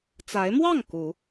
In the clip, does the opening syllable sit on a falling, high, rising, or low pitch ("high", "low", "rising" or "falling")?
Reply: rising